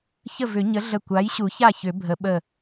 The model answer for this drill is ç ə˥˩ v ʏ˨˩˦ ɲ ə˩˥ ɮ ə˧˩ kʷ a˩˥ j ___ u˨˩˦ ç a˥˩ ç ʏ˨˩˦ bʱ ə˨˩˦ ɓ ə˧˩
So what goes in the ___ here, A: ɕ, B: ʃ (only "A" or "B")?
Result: A